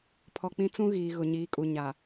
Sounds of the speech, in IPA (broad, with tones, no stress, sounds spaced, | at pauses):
pʰ ɔ˨ k͡p ĩ˦ t͡s ũ˦ ɣ iː˨ ɣ ʊ˨ ɲ iː˨˦ kʼ u˨ ɲ a˨